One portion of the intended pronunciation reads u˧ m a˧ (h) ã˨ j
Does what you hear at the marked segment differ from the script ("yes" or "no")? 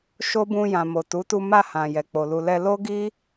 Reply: no